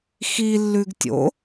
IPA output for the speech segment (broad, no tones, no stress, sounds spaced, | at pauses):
x i lː ʉ ɡ tʲ o̰